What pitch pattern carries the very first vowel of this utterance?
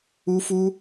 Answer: high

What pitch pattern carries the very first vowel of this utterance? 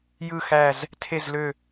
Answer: low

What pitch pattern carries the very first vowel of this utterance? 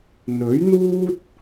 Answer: rising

